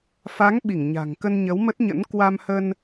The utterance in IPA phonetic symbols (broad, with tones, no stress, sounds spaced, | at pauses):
f a˨˦ ŋ ɓ i˧˩ ŋ ɲ a̤˨˩ ŋ k ə˧ n ɲ ə˨˦ w m ə˦˥ t̚ ɲ ə̰˧˥ n k w a˧ m h ə˧ n